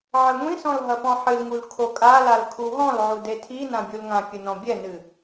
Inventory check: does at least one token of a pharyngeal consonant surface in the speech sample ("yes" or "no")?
yes